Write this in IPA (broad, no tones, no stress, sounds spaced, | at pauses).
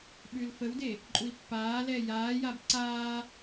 ɓ ʉ l f ə w d e | ǃʼ u i̯ pː aː l ɛ j aː j a b ǀ aː